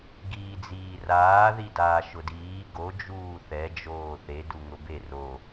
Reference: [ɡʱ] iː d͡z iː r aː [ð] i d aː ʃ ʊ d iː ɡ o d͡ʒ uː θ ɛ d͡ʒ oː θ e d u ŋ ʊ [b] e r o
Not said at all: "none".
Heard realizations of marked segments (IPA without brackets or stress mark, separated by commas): ɡ, ð, b